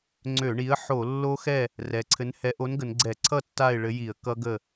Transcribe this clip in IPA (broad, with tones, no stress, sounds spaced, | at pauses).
ŋ͡ǀ ø˧˩˧ ɳ i˨˥ ə̯ ħ o˧˩˧ lː o˦˥ x ɛ˥˨ | r ɛ˩˧ ǀʰ ɘ˨˥ n h ɛ˨˥ ʔ o˨˥ n ɡ ə˩˧ n ɡ͡ǀ ɛ˧˩˧ ǀʰ ʌ˥˨ tː a˥˨ ɪ̯ ɭ ɘ˨˥ j i˧˩˧ ə̯ k ʌ˦˥ ɡ ə˥˨